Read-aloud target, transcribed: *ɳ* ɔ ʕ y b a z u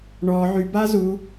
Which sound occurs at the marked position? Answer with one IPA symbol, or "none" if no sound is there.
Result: ɳ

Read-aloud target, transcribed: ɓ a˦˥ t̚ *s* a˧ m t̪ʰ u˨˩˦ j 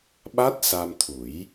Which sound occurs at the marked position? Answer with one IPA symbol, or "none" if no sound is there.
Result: s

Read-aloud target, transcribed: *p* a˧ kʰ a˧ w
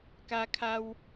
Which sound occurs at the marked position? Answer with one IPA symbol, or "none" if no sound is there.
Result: k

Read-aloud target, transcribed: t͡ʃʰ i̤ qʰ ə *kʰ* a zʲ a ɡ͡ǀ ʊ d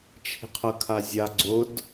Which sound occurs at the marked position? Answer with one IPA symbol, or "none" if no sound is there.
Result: kʰ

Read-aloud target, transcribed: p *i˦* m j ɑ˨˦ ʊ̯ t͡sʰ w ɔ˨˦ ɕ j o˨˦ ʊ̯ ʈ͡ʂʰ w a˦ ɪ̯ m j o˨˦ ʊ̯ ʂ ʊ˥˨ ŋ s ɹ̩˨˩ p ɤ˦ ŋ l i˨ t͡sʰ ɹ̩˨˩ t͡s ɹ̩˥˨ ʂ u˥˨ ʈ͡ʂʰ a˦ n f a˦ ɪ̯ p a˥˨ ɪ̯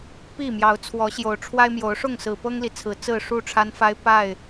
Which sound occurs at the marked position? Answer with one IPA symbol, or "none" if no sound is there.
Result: i˥˨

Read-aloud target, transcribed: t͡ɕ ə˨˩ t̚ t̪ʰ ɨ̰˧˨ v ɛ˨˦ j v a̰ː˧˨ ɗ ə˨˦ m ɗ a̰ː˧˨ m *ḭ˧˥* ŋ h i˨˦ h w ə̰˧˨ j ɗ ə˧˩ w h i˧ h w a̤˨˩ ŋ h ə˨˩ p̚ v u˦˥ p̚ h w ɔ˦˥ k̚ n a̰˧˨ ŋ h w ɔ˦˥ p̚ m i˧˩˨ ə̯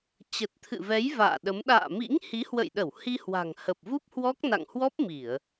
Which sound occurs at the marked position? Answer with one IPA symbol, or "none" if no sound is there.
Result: ḭ˧˥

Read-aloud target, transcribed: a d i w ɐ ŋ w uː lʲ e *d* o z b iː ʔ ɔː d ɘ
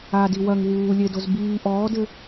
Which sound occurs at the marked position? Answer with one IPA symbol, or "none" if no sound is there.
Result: d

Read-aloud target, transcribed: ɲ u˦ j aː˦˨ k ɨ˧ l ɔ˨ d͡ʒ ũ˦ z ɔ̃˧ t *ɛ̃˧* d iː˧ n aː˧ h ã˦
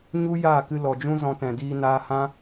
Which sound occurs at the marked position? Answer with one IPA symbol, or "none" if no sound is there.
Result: ɛ̃˨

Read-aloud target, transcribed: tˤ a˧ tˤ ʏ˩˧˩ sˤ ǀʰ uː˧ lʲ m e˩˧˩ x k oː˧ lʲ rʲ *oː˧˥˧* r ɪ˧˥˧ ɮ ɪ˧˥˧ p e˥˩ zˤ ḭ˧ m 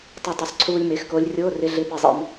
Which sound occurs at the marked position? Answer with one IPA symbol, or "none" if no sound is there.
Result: oː˧˥˧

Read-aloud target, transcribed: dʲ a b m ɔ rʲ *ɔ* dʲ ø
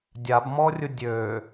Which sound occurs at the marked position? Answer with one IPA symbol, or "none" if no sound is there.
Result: ʊ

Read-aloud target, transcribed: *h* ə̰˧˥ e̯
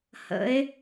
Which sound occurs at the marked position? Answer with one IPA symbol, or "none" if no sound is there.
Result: h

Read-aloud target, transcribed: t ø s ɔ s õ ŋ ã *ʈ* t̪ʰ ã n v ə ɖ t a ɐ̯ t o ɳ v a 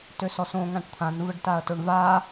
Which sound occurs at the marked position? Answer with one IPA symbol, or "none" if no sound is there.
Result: ʈ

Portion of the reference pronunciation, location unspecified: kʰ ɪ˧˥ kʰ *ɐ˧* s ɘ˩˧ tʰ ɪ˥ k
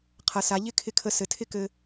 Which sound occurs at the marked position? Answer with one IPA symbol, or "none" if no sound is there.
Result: ə˧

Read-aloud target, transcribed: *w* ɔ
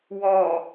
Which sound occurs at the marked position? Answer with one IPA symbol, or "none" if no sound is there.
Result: w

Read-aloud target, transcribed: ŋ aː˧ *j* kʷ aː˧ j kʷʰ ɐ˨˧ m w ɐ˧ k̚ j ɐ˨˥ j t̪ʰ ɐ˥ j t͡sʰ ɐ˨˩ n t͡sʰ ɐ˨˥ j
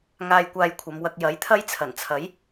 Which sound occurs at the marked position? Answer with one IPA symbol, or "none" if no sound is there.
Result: j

